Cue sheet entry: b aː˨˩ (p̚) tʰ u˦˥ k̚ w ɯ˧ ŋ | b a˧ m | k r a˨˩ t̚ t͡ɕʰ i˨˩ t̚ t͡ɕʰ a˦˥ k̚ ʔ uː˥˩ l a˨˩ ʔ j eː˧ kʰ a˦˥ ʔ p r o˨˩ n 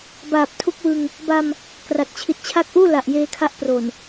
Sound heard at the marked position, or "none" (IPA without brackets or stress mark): p̚